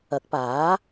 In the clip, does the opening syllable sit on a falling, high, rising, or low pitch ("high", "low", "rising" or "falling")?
rising